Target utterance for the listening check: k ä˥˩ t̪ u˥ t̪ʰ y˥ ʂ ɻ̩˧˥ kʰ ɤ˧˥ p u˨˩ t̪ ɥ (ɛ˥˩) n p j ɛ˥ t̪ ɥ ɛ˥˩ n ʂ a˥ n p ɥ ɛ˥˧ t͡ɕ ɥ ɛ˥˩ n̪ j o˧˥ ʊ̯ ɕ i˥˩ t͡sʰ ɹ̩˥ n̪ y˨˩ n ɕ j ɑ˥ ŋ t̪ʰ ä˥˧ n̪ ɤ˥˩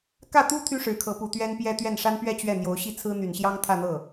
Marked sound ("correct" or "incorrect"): incorrect